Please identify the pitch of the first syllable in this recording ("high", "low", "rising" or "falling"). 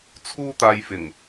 high